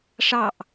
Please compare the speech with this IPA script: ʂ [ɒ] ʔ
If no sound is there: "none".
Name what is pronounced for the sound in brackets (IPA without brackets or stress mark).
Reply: ɑ